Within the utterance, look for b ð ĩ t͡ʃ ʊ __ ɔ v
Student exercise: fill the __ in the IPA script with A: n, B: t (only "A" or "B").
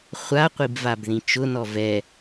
A